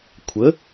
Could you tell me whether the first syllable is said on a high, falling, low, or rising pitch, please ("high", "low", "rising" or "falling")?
rising